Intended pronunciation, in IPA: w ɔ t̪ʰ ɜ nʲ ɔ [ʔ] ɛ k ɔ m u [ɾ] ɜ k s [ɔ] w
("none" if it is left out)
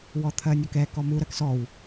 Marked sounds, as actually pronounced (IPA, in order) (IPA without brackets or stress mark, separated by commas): k, ɾ, ɔ